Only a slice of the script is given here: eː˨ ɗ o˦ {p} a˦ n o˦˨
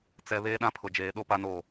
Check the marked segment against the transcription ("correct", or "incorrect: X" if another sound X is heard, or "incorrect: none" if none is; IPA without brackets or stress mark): correct